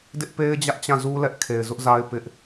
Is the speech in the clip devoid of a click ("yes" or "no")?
yes